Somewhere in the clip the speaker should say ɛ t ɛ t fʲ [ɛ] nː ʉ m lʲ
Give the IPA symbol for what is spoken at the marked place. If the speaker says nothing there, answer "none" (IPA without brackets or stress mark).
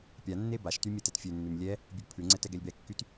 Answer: ø